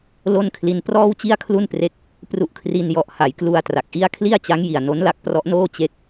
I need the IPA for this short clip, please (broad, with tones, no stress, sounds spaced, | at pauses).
l o˥˩ n kʰ l i˧ n p r ɔː˥˩ w t͡ɕ i˥˩ a̯ kʰ l u˥˩ n p r e˦˥ k̚ | p r u˦˥ ʔ kʰ r i˧ n j ɔ˨˩ ʔ h a˩˦ j k l u˧ a̯ t r a˨˩ k̚ ʔ i˥˩ a̯ kʰ l i˥˩ a̯ t͡ɕ a˦˥ ŋ j i˨˩ a̯ n o˦˥ n l a˦˥ k̚ p r ɔ˦˥ ʔ n oː˥˩ t͡ɕ e˦˥ k̚